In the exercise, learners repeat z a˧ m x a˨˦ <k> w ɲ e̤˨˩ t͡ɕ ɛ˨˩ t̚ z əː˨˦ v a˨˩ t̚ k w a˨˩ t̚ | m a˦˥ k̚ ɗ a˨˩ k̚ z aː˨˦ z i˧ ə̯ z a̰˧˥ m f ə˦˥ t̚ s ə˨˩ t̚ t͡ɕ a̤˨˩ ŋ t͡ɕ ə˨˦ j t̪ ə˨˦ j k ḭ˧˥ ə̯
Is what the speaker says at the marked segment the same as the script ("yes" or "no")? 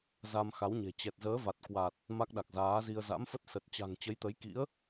no